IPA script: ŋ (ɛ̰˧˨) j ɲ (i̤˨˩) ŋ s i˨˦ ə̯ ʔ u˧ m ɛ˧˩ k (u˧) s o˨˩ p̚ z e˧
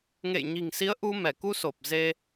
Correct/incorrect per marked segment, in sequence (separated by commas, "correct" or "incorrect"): incorrect, correct, correct